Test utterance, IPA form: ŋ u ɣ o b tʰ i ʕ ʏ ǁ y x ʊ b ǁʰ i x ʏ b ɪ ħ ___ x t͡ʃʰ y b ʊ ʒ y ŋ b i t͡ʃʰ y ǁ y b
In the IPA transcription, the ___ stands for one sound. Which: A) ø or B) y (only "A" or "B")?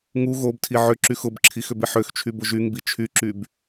A